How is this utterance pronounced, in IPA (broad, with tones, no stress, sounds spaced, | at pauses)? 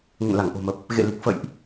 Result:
ŋ ə̰˧˨ n l a˧˩ ŋ ʔ o̤˨˩ m ə˨˩ p̚ | ɣ ḛ˧˨ l i˨˩ k̚ f ə̰˧˨ j ʔ